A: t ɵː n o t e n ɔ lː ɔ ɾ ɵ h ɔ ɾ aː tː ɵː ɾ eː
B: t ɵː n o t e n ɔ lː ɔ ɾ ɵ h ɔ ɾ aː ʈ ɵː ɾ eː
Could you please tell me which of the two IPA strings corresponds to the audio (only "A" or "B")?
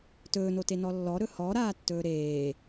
A